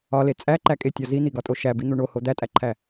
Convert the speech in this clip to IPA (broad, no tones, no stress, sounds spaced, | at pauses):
ɒ l e t͡sʼ æ ǃ æ kʼ e tʲ ɒ z i n̪ i ɡ ɒ tʼ o ʃ æ b i n̪ u ɳ o h o d̪ æ tʼ æ ǃʰ æ